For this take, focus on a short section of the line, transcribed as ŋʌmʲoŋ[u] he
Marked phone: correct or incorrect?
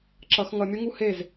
correct